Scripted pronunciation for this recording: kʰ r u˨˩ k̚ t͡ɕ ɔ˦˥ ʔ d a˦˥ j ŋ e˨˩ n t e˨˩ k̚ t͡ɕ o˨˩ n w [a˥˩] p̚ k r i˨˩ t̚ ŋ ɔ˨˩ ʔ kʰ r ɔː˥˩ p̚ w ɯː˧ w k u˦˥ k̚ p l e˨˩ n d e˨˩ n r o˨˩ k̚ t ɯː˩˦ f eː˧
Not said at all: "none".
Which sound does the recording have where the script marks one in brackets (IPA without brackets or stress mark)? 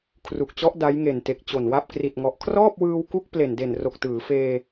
a˥˩